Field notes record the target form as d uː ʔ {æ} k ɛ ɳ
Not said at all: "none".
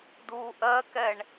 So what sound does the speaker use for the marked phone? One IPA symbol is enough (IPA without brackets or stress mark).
ɜ